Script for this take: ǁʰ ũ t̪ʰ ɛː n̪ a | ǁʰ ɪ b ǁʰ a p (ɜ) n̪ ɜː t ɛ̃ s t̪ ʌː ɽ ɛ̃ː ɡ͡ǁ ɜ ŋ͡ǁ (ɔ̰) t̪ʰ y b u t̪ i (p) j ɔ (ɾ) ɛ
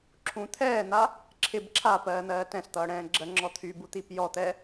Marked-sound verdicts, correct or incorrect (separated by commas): incorrect, incorrect, correct, incorrect